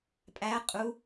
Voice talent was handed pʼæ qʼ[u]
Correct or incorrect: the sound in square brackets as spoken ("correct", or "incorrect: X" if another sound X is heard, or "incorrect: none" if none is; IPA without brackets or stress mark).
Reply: correct